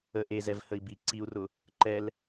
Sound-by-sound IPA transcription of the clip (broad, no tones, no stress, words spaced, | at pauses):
ə ʔezɛvhəi̯ bi ǀiu̯rʊ | ǃɛl